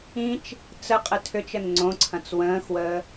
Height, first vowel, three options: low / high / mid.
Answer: high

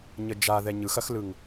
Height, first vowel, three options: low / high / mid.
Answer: mid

